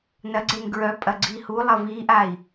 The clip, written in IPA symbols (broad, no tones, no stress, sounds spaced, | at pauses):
n ɐ ɡ͡ǀ e n ɡ ɹ œ pʼ ɐ ɡ͡ǀ iː h u lˠ ɐ v iː ʔ aː i̯